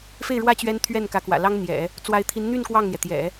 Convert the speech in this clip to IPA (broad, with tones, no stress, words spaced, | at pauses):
fe˥˩ɪ̯ɻwä˥ t͡ɕɥɛ˥nt̪ʰɥɛ˥˩n kä˧˥kwä̰˨˩ lɑ˥ŋn̪jɛ̰˨˩˦ | t͡swa˧˥ɪ̯t̪ʰi˧˥nn̪y˥˧n kwɑ˥˩ŋn̪jɛ˩ t̪jɛ̰˨˩˦